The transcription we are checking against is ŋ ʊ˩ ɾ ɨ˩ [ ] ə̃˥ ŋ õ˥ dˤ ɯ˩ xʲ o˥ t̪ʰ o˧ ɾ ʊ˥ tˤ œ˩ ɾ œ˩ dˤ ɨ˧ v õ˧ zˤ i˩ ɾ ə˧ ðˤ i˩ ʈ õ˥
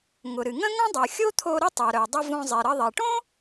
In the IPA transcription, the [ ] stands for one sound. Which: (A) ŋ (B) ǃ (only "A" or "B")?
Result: A